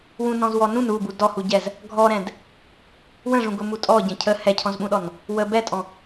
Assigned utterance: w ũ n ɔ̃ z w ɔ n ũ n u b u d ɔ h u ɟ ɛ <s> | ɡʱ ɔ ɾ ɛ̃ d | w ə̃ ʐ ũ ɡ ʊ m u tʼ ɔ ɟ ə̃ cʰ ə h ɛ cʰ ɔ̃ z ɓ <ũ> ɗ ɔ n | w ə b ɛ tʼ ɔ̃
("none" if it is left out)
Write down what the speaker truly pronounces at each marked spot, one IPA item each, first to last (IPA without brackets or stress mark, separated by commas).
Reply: z, ũ